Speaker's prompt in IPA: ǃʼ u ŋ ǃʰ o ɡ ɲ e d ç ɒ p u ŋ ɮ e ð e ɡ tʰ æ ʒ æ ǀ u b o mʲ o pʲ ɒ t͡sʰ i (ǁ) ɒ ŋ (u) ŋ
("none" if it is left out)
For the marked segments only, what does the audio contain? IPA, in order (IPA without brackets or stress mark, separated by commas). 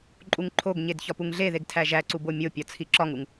ǁ, u